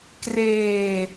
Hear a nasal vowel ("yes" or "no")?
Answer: no